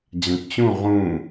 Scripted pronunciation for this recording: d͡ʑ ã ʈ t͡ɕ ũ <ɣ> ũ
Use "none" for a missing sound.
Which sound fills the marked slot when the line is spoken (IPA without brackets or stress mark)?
ʁ